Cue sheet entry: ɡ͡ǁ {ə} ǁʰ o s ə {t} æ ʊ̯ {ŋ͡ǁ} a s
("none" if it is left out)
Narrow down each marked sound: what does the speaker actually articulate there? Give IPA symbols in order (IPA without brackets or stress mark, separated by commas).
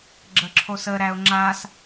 ə, ɾ, ŋ͡ǁ